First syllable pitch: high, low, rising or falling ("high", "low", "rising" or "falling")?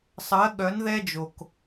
rising